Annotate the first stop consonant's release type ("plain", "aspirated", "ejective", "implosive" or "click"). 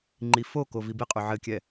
click